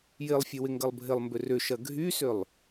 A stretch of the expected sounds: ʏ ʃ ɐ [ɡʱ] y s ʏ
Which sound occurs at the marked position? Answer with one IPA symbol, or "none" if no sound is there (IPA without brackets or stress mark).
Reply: ɡʱ